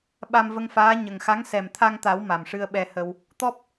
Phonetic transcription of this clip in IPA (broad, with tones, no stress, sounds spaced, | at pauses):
ɓ a˧ m v ə˧ ŋ f aː˧˥ ɲ ə˨˩ ŋ x a˧˥ ŋ s ɛ˨˩ m t̪ʰ a˧ ŋ t̪ a˨˩˦ w m a˨˩ m ʂ ɨ˧ ə̯ ɓ ɛ˧ h ə˧ w | t̪ ɔ˦˥ p̚